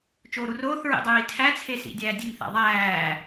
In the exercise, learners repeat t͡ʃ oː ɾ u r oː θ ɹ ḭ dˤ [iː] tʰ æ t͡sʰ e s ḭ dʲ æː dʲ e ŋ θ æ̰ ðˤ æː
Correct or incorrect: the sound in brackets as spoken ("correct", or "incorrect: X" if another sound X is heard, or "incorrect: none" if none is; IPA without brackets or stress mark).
correct